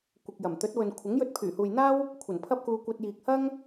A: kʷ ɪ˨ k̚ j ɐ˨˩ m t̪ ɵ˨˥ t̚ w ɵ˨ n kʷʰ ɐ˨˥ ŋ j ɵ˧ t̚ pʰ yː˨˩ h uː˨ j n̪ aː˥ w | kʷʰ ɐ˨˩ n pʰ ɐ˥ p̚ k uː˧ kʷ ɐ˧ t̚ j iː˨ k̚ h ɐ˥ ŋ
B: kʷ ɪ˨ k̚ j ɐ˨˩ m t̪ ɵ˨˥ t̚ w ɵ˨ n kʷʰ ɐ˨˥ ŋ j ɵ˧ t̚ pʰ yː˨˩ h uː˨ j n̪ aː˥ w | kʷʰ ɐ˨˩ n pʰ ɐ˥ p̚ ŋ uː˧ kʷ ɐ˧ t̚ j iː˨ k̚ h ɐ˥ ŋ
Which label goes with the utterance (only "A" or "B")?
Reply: A